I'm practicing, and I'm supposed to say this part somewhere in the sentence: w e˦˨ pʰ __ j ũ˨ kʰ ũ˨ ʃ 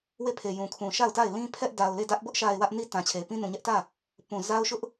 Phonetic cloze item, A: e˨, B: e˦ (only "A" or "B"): A